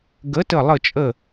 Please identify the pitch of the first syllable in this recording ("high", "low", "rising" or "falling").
rising